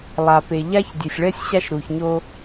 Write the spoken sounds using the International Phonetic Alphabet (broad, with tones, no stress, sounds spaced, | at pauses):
lˠ a˨ p e˨ ʎ a˦ ç dʲ e˨ sʲ ɭ ɛ˦ sʲ ɕ a˦ ʃ ɾ u˨ ç ɲ o˦